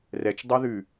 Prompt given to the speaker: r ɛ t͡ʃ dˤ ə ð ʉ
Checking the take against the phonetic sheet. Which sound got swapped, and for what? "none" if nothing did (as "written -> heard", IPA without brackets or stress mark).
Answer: ə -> ɛ